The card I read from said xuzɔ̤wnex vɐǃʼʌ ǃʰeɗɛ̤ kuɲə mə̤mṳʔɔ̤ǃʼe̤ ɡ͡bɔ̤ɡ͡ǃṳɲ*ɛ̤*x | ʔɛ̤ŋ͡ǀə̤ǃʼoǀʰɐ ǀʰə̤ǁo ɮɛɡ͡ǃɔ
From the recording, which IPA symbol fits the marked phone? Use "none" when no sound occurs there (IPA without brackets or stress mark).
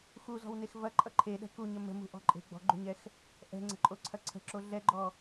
ɛ